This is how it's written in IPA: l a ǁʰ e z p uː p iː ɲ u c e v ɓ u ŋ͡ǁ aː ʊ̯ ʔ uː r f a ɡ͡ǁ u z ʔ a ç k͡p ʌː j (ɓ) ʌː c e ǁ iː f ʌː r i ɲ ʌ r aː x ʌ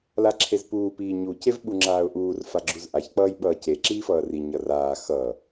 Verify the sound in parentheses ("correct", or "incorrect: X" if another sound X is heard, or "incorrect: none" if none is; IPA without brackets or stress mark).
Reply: correct